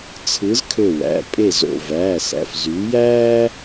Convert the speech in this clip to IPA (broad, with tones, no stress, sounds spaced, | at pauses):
t͡sʰ ɯ˨˦ z kʰ ø˧˩ w æ̰˩˧˩ pʼ e˥˩ z o̰˧˩ v æː˩˧˩ s æ̰˩˧˩ f z yː˨˦ j æː˥